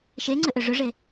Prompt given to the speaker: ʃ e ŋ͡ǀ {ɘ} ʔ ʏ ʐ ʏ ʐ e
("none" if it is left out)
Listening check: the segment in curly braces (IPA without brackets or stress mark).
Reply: ɘ